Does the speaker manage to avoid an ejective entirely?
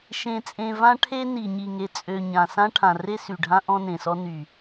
no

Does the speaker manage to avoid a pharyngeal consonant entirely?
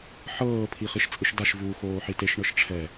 no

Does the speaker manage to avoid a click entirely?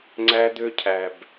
no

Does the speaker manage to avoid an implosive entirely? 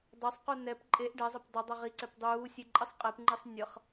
yes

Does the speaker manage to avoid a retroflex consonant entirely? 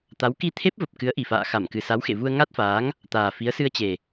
yes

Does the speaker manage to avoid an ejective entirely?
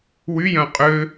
no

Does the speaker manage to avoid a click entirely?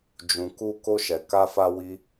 yes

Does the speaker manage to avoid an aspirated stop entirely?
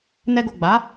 yes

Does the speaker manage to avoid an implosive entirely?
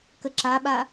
no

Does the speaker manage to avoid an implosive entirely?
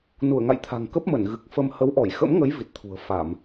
yes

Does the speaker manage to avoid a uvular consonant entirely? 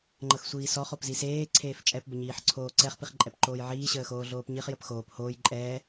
no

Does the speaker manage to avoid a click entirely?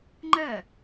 no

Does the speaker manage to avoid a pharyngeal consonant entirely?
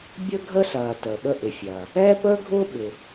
yes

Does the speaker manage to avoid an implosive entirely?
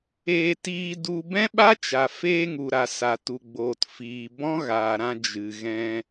no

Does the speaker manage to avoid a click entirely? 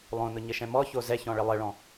yes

